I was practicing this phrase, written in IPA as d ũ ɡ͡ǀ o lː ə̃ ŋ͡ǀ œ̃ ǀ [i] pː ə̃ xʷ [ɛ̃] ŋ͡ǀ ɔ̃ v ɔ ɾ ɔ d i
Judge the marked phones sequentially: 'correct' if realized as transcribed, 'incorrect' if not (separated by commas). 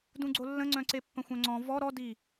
incorrect, incorrect